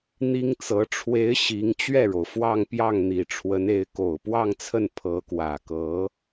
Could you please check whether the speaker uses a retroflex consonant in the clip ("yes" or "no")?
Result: yes